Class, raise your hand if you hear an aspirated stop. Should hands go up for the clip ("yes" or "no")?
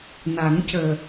no